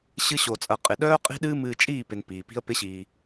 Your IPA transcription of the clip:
ɕ ɨ˦ ɕ o˧ t͡sʼ ɐ˧ qʼ ɪ˨ ɗ œː˦ qʼ i̤˦ ɗ ɨː˦ m ɨː˧ t͡ʃʼ iː˦˨ p ɪ˨ n p iː˨ p i̤˦ ə̯ p ɪ˦ ɕ iː˧

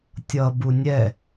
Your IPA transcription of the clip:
tʲ ʌ b u nʲ ɛ

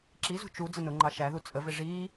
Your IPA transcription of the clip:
ǁ i z ṳ t͡ʃ u d͡z ə n ʊ ŋ͡ǃ ɑ ʃ æ ð u t͡sʼ ə v ɪ ʐ iː

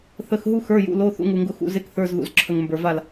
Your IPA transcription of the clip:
θ ə˩˧˩ x ɦ u˧ x ə˞˩˧˩ j ṵ˩˧˩ l o˩˧˩ θ ṵ˧ ŋ u˩ ŋ ɡ ʊ˧˩ x ṵ˧˩ z e˧ k θ ə˞˩˧˩ z ð ṵ˩ z ǁʰ ə˩ ŋ m b ə˞˩ v a˧˩ l

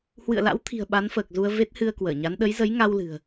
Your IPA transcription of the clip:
h w ɨ̰˧˨ ə̯ l a̰˧˥ w t̪ʰ i̤˨˩ ə̯ ɓ a˨˦ n f əː˨˩ k̚ z u˧ ə̯ v e˦˥ t̚ h ɨ˧ ə̯ k w əː˧˩ ɲ a˨˦ n ɗ ə˨˦ j z ə˨˦ j ŋ a˧ w l ɨ̤˨˩ ə̯

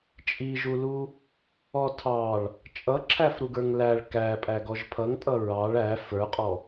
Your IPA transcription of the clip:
t͡ʃʼ i ʒ u l u | ɔ tʰ ɑ ɭ | t͡ʃʼ ʌ ǁʰ æ f ɾ u ɡ ə˞ ŋ l æ ɭ k æ pʼ æ ɡ ɔ ʒ pʰ ʌ ŋ tʼ ʌ ɹ ɑ ɭ æ f ə˞ qʼ ɔ

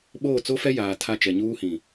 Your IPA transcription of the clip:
ɓ oː˦˨ t͡s o˦ f ɛ˦ j aː˨ tʰ a˦˨ t͡ʃ ɛ˨ ɲ uː˦ h ĩ˨

